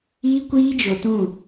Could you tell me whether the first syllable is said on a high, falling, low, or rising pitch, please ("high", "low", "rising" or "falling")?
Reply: high